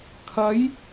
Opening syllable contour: rising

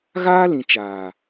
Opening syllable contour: high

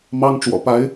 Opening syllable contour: high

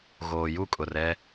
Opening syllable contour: low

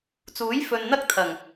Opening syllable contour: rising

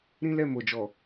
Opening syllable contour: high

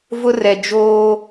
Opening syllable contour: high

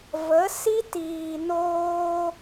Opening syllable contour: rising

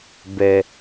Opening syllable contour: low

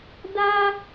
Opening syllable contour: high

